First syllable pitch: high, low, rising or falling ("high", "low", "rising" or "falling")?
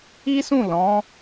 high